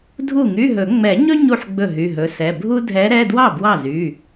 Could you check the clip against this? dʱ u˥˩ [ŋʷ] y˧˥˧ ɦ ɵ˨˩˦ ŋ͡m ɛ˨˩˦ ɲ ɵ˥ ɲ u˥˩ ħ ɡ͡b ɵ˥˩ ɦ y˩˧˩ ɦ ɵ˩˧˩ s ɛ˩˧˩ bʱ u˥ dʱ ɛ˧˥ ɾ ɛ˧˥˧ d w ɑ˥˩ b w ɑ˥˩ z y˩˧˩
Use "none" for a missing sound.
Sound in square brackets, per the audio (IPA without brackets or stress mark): ŋ